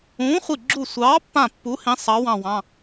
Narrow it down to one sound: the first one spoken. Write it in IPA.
ũː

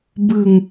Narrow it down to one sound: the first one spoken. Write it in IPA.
b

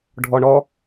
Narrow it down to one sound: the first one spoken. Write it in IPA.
ɖʱ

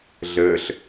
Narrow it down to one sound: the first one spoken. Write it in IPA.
ɮ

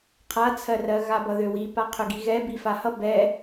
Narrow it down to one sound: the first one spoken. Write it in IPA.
qʰ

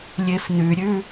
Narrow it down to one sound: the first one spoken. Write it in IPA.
lʲ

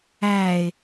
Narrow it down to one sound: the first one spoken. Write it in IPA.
æː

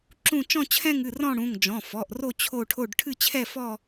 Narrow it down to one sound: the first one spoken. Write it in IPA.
ǁ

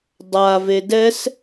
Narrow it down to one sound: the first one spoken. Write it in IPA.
dˤ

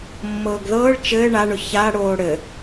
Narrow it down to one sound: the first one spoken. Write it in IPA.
mː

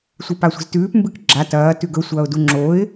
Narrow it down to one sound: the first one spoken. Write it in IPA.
sʷ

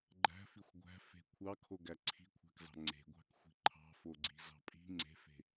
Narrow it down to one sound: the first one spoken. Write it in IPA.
ɡ͡ǃ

